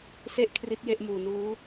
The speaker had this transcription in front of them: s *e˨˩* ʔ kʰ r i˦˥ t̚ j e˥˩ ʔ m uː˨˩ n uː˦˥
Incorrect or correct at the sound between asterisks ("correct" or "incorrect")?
incorrect